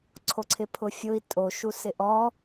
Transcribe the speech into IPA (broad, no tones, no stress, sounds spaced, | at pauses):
ǀʰ o ǀʰ ɪ pʰ ʊ fʲ ʊ i̯ tʼ o ʃ u s ɪ ʔ ɔ